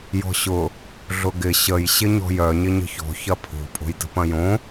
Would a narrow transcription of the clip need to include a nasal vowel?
yes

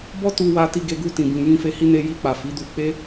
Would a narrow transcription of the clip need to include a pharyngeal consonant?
no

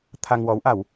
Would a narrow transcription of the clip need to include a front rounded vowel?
no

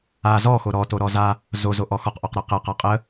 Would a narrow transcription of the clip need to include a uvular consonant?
yes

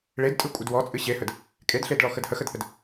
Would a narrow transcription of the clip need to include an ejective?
yes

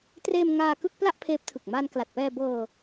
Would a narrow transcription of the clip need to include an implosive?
no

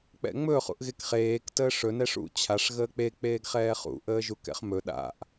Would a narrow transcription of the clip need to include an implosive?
yes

